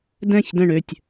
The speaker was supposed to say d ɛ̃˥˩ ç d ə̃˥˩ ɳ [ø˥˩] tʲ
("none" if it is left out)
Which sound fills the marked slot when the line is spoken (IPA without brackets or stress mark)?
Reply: ø˥˩